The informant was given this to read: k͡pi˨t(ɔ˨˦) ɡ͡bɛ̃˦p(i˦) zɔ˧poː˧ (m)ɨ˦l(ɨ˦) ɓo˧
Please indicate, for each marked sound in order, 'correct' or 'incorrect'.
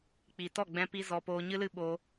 incorrect: ɔ˦˨, correct, incorrect: ɲ, correct

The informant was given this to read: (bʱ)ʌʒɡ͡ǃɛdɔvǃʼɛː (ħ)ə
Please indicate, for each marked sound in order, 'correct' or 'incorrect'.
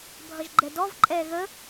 correct, incorrect: ɣ

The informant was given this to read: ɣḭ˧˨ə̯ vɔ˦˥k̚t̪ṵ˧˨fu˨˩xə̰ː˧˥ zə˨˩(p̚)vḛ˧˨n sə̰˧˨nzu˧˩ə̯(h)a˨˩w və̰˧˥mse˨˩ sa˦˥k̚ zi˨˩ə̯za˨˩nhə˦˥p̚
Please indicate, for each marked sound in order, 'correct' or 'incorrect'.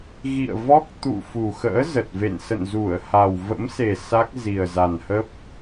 incorrect: t̚, correct

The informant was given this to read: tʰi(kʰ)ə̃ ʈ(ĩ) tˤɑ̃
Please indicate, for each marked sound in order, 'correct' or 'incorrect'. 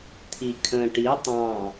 correct, incorrect: i

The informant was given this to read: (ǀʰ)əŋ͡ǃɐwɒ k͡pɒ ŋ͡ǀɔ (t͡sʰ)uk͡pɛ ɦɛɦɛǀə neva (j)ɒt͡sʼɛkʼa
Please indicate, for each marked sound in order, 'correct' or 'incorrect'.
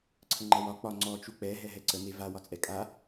correct, incorrect: t͡ʃ, incorrect: w

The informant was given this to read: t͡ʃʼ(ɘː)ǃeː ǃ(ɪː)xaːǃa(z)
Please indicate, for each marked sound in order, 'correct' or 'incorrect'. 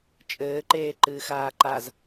correct, incorrect: ɨː, correct

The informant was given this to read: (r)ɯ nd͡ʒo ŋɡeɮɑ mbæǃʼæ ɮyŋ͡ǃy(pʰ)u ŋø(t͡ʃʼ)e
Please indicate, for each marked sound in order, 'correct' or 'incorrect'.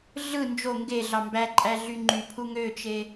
incorrect: ɮ, correct, incorrect: t͡ʃ

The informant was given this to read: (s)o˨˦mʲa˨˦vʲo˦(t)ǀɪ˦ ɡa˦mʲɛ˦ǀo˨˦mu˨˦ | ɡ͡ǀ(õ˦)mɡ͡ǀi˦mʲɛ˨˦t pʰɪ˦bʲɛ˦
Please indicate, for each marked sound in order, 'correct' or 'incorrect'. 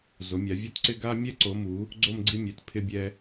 incorrect: z, correct, incorrect: o˦

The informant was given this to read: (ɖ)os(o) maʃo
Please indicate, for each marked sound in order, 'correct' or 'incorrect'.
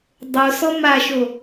incorrect: dˤ, incorrect: ɔ

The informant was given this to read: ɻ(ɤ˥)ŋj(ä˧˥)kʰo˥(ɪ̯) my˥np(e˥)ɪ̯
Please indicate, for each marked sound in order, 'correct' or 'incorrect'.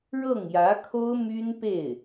incorrect: ɤ˥˩, correct, incorrect: ʊ̯, incorrect: e˥˩

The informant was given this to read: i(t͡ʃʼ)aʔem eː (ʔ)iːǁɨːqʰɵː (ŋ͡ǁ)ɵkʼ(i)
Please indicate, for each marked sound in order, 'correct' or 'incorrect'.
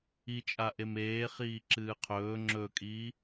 correct, incorrect: χ, correct, incorrect: iː

